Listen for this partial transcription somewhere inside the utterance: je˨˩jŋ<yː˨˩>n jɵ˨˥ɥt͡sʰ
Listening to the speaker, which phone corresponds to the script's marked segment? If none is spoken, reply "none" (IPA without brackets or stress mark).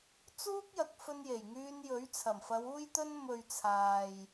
yː˧